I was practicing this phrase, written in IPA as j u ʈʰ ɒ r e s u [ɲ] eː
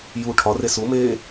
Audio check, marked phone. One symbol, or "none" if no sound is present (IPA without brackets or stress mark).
m